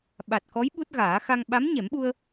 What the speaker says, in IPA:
ɓ a˨˩ t̚ k ɔ˧˥ j ɓ u˦˥ t̚ ɣ aː˨˩˦ x a˧ ŋ ɓ a˧˥ m ɲ ɛ˨˩˦ m ɓ u˧ ə̯

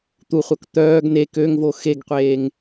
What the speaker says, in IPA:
t̪ u χʷ œ k t̪ œː ɡ n e k ø ŋ v o x e ɡ qʷ eː ŋ

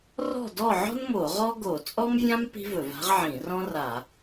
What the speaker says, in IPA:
r ɔ̤˥˨ d ɔ˥˨ ʕ ɔ̤˥ n m o˧˩˧ ʁ ɔ˥ ɡ o˧˩˧ t͡sʼ ɔ˥ m vʲ ã˥ m p i̤˥ v ɵ˧˩˧ v a̤˥ ʁ ʕ ĩ˧˩˧ r ɔ̃˥ r a˧˩˧

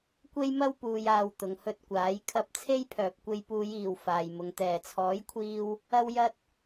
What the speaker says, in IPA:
kʷ e˥ j m ɐ˥ w p uː˨ j aː˨ w t̪ ʊ˨ ŋ h ɵ˧ t̚ kʷ aː˨˥ j kʰ ɐ˧ p̚ t͡sʰ e˥ j pʰ œː˨ p̚ kʷ e˧ j p uː˨˧ j iː˨˩ w f aː˨ j m ʊ˨ ŋ t̪ ɛː˨˩ t͡sʰ ɔː˨˥ j kʷʰ iː˧ w | ɐ˥ w j ɐ˥ t̚

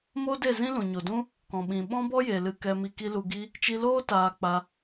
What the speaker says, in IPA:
m o˦ d e˦˨ z ĩ˦ l ũ˨ ɲ o˨ d ũ˦ | k ɔ̃˨ ɓ ĩ˨ ɓ ɔ̃˦ b ɔ˦ j e˨ l ɨ˧ k ɛ˧ m i˧ k i˦ l u˧ ɡ i˦ | t͡ʃ i˧ l oː˦ t aː˧ k͡p a˧

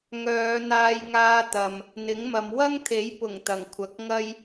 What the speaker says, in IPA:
ŋ œː˨˧ n̪ aː˧ j ŋ aː˧ t̪ ɐ˨ m | n̪ ɪ˨˥ ŋ m ɐ˨˧ m w ɐ˥ ŋ t̪ʰ e˨˥ j p ʊ˨˩ ŋ t̪ ɐ˨˩ ŋ kʷʰ ɐ˨˥ k̚ ŋ ɐ˥ j

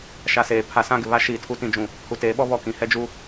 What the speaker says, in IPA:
ʃ a˨ s eː˨ pʰ a˨ s ã˦˨ ɡ ɪ˨ β a˦ ʃ iː˨ tʰ u˦ t ĩ˦ d͡ʒ ũ˦˨ | h u˨ t eː˨˦ ɓ ɔ˦ β ɔ˨ k ĩ˨ h ɛ˦ d͡ʒ u˦

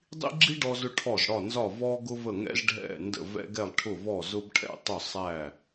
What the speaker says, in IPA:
dˤ ḭ˥ ɡ͡ǁ i˥ ɖ ɔ˥ z ʊ˥ ʈʰ ɔ˥˩ z ɽ ɒ˥˩ n z ɒ˥˩ v ɔ˥ ɡ ʊ˥ v ə˥˩ ŋ ɛ̰˥ z ɖʱ ɛ̰˥˩ n d ə̰˥˩ v ɛ̰˥ ɡ ɛ˥˩ lˠ ʈʰ ʊ˥˩ v ɔ˥˩ z ʊ˥ b ʈʰ ɛ̰˥˩ tˤ ʊ˥˩ sˤ æ˥˩

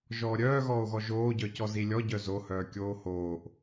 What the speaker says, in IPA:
ʒ ɔː ɾʲ œː ɣ ɔː o̯ ɣ ɔ ʒ oː ɟ œː c ɔ z i lʲ ɔ ɟ œ z o h œː kʲ oː h oː ʔ

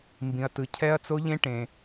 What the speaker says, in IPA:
m b ĩ˦ ɐ̯ t ɯ˦ cʰ ɛ˦ ɐ̯ t͡s o˦ ʎ ẽ˦ ʈ ẽ˦

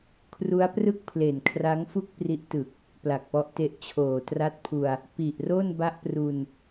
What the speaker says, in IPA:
kʰ r u˦˥ a̯ p r ɯ˥˩ k̚ pʰ l e˨˩ n kʰ r a˦˥ ŋ f u˥˩ k̚ p r i˦˥ ʔ t ɯ˨˩ k̚ | p l a˨˩ k̚ p ɔ˦˥ ʔ t e˦˥ ʔ t͡ɕʰ oː˨˩ t r a˥˩ t̚ pʰ u˧ a̯ | p i˨˩ ʔ r o˥˩ n b a˥˩ ʔ p r u˧ n

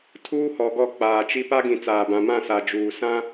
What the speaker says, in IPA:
tʰ uː˦ h ɔ˨ ɡ ɔ˦˨ k͡p aː˨ t͡ʃ i˦ p a˦ ɡ ĩ˨ t͡s aː˨ b ã˨ m ã˦˨ s a˨ d͡ʒ uː˨ s ã˦

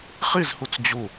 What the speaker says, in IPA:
χ i z h u t͡s d͡ʑ u

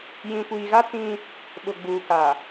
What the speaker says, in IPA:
j ĩ˨ kʷ iː˨ ɣ a˦ t͡s ĩ˦ | ɓ ʊ˨ ɡ͡b uː˨ k a˨

